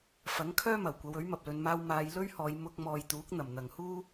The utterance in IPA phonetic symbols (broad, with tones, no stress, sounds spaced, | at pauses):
f ɐ˨˥ ŋ kʰ œː˥ m ɐ˨˩ w kʷ ɐ˨˧ w ɵ˨˥ ɥ m ɐ˨ p̚ l ɵ˨˧ n m aː˧ w m aː˧ j l ɵ˥ ɥ h ɔː˨˧ j m ʊ˧ k̚ m ɔː˨ j t̪ uː˨˥ k̚ n̪ ɐ˨˩ m n̪ ɐ˨ ŋ h uː˥